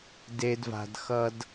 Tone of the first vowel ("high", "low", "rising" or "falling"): high